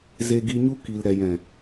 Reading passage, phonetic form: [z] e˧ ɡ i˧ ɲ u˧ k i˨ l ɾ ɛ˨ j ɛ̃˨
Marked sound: correct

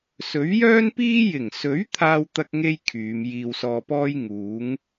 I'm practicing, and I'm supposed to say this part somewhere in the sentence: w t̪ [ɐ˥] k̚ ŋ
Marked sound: correct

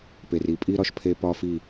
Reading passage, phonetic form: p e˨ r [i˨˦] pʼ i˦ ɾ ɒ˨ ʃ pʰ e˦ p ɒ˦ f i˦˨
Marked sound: correct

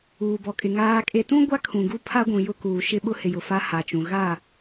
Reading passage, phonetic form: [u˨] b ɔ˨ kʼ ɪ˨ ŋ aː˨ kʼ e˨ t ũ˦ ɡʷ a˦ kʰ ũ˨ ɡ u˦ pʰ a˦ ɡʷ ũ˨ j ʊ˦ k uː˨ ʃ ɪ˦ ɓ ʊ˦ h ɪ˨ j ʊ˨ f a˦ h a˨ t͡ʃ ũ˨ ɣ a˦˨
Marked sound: incorrect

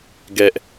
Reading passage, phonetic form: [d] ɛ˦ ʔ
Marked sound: incorrect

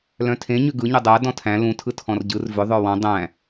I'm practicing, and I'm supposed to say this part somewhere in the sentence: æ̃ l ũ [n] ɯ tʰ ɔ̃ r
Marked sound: incorrect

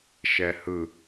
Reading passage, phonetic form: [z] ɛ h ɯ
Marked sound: incorrect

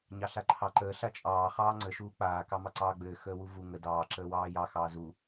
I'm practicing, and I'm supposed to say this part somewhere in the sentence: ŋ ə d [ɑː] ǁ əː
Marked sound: correct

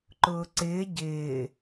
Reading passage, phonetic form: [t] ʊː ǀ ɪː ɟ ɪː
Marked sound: incorrect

